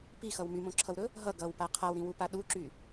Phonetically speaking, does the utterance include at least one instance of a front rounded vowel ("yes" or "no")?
yes